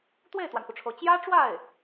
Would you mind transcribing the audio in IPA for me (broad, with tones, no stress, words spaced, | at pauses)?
t̪we˥˩ɪ̯t̪wa˩nxu˩ʈ͡ʂʰo˩ʊ̯ t͡ɕjä˥ʈ͡ʂwa˥˩ɪ̯